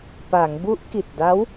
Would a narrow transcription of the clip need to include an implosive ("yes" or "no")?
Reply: no